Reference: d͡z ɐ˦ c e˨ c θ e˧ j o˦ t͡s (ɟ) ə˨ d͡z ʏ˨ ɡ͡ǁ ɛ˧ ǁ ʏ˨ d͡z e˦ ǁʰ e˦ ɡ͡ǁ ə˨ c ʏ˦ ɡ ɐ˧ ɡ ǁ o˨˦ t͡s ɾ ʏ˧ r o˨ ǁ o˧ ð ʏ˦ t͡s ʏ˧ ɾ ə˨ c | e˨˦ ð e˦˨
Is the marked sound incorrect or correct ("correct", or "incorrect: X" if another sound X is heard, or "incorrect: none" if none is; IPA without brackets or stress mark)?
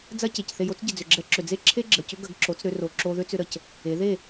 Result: correct